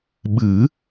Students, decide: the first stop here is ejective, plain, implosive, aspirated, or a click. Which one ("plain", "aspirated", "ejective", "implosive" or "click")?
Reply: implosive